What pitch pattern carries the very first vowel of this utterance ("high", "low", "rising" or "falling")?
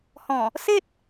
low